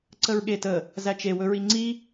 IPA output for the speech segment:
ǀ ə ɹ ɠ e t ə | z æ t͡ʃ e w ɵ ɹ i ŋ͡ǀ i

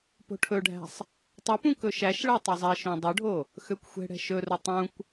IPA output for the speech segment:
p o̤ ʈʰ ɵ ɖʱ æ̤ sˤ | tˤ ɵ p ũ k ɵ ʃ æ ʃ ɭ æ tˤ ɵ zˤ ɛ ʃ õ dˤ ɵ ɖʱ o | x ø kʷ xʷ ɛ̤ ɽ ɛ̤ ʃ ɵ r ɵ tˤ ũ kʷ

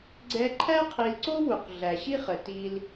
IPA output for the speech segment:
ɡ͡ǀ ɛ˧ ǃʰ æ˥ qʰ i˧ l ǀ o˥ w u˩ q ɮ æ˩ ɕ i˥ χ ə˩ t i˧ l

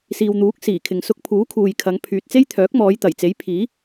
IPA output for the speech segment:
s iː˨ w n̪ uː˨˥ k̚ s iː˨˩ kʰ ɪ˨ ŋ s ʊ˧ k̚ pʰ uː˨˥ kʰ uː˨ j kʰ ɐ˨˧ ŋ pʰ yː˨ t̚ t͡s e˥ j t̪ʰ œː˨˥ k̚ m ɔː˨˧ j t̪ ɐ˨˩ j t͡s e˨˥ j pʰ iː˨˥

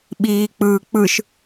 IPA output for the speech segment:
ɓ iː k͡p ɯː k͡p ɯ ʃ

